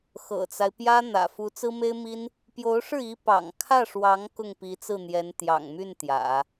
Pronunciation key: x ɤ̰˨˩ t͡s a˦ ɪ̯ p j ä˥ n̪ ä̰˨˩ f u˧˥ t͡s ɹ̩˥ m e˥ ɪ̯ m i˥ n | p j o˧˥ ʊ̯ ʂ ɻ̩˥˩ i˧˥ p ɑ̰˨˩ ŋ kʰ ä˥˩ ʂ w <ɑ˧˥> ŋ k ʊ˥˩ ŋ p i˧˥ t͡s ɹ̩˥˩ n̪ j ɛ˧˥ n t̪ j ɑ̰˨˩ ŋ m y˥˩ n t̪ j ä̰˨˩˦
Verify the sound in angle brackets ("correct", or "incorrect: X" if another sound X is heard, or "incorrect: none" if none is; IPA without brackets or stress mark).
correct